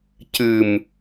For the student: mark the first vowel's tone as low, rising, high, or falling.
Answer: low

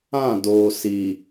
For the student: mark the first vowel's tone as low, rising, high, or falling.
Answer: falling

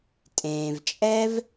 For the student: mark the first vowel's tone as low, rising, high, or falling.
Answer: low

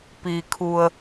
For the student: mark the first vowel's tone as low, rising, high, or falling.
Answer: low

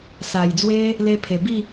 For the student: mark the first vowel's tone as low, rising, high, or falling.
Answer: low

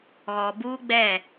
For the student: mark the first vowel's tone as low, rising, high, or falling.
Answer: low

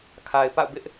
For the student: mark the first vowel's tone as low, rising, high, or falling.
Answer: low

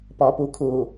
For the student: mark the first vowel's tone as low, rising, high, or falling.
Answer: low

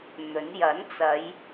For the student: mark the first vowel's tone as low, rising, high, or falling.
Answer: rising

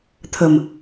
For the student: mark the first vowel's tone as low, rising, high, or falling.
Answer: low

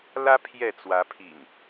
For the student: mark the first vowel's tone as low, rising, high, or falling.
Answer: high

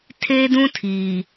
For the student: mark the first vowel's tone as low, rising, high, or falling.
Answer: high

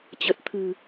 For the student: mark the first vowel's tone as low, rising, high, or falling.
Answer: low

